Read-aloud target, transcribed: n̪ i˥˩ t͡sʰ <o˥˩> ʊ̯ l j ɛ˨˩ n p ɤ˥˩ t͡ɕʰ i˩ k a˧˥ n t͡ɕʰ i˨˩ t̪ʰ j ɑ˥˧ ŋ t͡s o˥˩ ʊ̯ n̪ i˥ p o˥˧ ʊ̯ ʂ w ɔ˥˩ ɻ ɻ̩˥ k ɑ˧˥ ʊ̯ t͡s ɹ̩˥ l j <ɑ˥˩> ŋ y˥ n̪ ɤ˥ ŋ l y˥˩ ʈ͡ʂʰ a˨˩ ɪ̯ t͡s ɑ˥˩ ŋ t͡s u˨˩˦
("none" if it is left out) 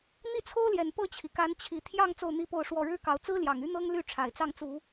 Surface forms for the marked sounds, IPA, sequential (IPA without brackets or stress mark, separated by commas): o˥, ɑ˨˩